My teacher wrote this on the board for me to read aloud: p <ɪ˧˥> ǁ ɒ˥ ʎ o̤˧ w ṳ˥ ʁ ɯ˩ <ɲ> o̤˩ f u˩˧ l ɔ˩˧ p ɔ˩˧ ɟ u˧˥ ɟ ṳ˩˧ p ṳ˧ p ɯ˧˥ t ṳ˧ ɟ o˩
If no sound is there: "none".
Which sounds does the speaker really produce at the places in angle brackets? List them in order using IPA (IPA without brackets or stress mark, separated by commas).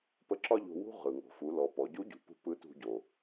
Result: ə˧˥, ŋ